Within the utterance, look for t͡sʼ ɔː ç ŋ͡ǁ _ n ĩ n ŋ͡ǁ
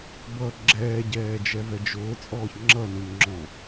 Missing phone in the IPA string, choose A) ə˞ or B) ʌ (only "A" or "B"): B